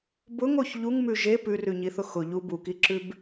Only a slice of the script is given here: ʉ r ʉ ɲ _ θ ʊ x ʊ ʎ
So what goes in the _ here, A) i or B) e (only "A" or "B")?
A